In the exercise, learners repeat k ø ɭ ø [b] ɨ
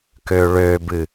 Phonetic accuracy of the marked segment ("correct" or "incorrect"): correct